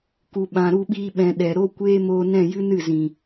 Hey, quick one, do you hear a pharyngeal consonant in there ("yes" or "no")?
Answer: no